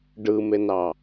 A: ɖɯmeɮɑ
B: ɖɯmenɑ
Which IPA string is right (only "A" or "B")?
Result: B